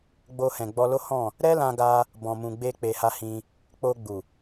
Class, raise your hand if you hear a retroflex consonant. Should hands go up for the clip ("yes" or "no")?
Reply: no